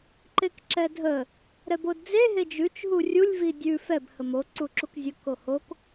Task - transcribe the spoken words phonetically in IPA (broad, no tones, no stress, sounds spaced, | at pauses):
ǃ e k ǁ ɛ dʱ ə | ɾ ɛ b o d d͡z e ɦ e d͡ʒ ʉ t͡ʃ ɦ u rʲ u lʲ v i dʲ ʉ f ɛ b h ə m o ǀ u ǁ u k zʲ ə k o h o k